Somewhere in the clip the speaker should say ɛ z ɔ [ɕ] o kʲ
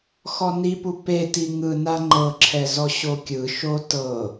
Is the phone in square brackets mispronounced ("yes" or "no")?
no